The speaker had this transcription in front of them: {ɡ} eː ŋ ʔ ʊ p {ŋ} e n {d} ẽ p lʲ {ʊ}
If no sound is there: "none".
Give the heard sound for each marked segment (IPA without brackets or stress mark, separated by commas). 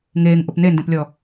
ŋ, n, d, ɔ